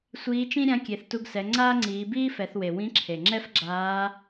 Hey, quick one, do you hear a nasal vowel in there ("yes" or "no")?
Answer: yes